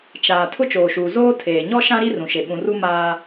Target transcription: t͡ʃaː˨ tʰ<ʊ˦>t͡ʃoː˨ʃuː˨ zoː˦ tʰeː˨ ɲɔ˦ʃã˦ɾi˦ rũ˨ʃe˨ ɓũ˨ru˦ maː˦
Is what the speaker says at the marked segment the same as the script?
yes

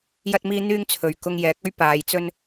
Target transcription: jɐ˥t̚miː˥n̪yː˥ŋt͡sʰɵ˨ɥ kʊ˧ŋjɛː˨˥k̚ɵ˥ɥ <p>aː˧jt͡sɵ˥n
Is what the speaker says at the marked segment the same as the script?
yes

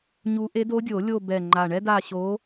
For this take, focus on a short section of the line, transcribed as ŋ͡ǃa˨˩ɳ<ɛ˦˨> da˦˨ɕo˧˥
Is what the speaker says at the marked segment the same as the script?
no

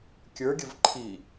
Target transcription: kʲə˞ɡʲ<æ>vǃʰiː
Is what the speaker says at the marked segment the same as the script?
no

